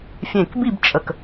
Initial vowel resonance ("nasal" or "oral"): nasal